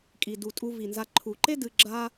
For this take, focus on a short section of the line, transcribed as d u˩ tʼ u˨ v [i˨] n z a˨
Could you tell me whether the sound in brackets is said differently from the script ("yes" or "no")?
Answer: yes